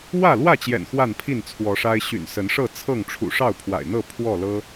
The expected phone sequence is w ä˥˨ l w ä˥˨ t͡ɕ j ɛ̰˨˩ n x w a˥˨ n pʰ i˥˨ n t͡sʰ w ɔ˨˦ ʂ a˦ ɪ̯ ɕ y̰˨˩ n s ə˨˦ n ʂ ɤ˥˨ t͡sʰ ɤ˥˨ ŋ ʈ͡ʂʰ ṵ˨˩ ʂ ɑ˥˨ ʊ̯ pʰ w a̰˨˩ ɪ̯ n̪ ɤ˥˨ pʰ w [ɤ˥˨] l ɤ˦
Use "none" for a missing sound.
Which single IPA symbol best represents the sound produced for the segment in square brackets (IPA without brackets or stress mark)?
ɔ˥˨